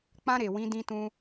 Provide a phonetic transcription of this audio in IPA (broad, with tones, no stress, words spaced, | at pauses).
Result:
k͡pã˧ ɾe˨ wĩ˨˦dĩ˧tũ˧